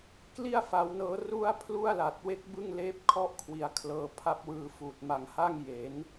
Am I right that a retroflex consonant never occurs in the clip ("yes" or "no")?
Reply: yes